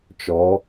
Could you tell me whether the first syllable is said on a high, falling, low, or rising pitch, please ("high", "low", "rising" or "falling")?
rising